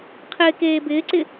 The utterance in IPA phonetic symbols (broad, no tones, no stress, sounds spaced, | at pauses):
qʰ ɪː k eː b ɪː ǀ ɪ